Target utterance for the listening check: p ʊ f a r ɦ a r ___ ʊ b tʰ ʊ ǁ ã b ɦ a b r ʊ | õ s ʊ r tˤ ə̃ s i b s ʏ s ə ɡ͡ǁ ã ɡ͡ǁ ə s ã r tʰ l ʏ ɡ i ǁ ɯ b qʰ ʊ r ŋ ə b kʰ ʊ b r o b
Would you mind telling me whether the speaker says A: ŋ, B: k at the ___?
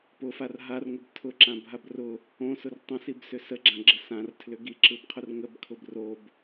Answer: A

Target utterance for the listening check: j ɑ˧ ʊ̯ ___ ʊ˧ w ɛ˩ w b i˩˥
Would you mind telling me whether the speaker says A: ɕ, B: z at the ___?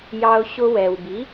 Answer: A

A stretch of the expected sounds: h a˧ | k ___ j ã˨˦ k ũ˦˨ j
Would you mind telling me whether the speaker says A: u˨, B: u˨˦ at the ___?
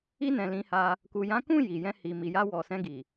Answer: A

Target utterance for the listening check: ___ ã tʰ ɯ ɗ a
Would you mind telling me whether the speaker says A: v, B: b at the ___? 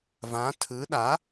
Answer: A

